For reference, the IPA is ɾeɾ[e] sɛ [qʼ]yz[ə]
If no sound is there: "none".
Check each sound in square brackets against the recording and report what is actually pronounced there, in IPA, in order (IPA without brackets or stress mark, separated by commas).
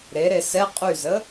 e, qʼ, ə